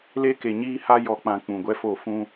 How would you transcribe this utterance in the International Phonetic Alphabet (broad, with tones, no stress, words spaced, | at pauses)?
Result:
le˦ke˨ɲiː˦ha˦ jɔ˨k͡pã˨ k͡pũ˨ɡʷɛ˦fo˦˨ fũ˦